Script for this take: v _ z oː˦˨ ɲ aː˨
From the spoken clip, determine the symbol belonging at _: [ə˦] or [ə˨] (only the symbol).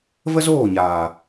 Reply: ə˦